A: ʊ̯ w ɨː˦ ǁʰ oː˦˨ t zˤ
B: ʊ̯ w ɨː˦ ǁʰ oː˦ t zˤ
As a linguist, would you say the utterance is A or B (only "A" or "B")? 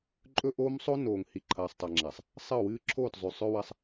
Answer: A